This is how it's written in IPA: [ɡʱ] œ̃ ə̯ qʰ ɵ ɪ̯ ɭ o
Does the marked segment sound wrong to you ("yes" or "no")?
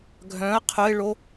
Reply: no